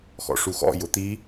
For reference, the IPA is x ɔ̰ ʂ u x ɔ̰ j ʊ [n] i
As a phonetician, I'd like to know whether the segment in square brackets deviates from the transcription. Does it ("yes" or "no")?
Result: yes